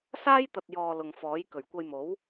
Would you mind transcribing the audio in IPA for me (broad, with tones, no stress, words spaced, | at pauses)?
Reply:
saː˥jt̪ɐ˨t̚jɔː˨ lʊ˨ŋfɔː˨˥jkɵ˨˩ɥ kʷɐ˧jmo˨˥w